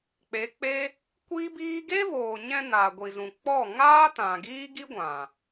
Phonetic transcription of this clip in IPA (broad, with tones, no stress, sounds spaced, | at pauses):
k͡p e˨˦ k͡p e˦ | kʷ iː˦ b iː˦ ɡ e˦ v oː˨ ɲ ɛ̃˧ n aː˨ ɡʷ i˨ z ũ˨ k͡p ɔ˦˨ ŋ aː˦ t ã˨ ɡ iː˦ ɡ i˦ ɡʷ ã˨